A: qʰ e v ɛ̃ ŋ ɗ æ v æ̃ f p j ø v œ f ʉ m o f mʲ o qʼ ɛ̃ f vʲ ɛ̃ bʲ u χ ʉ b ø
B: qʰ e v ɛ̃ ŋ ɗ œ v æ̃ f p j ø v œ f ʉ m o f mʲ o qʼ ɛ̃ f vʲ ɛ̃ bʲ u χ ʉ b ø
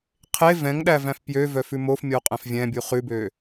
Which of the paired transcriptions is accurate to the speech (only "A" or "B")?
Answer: A